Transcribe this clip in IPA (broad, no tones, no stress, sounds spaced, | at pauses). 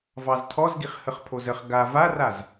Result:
v ɑ z tʰ ɔ z ɡ i χ h ə χ pʰ o z ə χ ɡ a v a r a z